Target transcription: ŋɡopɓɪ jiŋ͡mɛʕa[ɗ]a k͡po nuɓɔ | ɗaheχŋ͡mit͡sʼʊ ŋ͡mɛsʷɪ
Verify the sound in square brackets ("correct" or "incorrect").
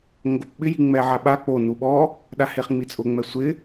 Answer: incorrect